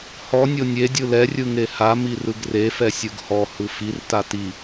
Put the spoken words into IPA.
h ɔ nʲ o nʲ e dʲ ɯ l ɛ rʲ ɯ ŋ e h a m i r ɯ ɡ r e f ɛ sʲ ɯ ɡ h ɔ h ɯ f i r t a t i

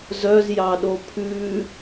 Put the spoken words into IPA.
z œ z j ɑ ɗ o pʰ ʉ

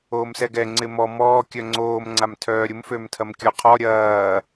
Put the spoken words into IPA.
oː m s ɛ ɡ ɛ ŋ͡ǀ ɪ m ɔ m ɔː kʲ œ ŋ͡ǀ oː m ŋ͡ǀ a m tʰ œː ɾʲ ʊ m f ø m tʰ ɐ m kʲ ɔ qʰ ɔ ɾʲ ɐː

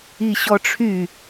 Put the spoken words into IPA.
i ɕ ɔ ʈ͡ʂʰ y

